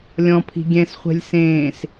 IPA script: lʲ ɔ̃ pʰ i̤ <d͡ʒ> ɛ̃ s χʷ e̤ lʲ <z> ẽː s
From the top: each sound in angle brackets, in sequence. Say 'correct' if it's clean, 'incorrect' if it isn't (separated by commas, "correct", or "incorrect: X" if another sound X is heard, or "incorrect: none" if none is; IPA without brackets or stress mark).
incorrect: ɡʲ, incorrect: s